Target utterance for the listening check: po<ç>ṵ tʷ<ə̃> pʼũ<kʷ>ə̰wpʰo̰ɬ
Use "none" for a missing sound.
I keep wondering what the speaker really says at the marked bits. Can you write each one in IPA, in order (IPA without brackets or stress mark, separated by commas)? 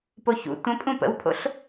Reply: ç, ə̃, p